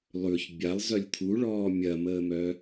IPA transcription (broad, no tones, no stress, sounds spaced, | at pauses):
lˠ ʉ ç bʲ a lˠ z œ lʲ t̪ʰ u ɭ ɔː mʲ ɐ m əː m œ